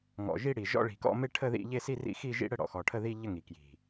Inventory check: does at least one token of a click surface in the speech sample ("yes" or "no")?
no